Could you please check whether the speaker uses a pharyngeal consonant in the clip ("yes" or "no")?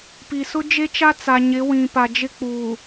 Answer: no